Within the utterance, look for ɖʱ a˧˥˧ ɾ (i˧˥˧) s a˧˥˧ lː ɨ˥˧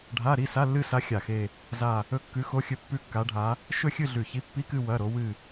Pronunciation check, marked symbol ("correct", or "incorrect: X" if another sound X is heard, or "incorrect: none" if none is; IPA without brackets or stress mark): correct